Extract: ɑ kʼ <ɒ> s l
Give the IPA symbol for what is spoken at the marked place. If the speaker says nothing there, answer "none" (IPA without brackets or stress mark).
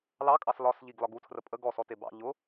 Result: ɑ